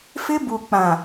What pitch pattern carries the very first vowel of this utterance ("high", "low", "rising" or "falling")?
high